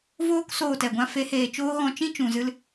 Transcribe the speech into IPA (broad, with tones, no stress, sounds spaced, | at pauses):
v oː˦ k s oː˦˨ t ɛ˨ ɡʷ ã˦ f e˨˦ h eː˨ t͡ʃ oː˦ ɣ ɔ̃˧ t͡ʃ ĩ˦ t͡ʃ ũ˨ z ɨ˧ l